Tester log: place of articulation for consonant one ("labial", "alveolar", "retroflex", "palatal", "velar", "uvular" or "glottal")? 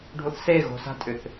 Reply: retroflex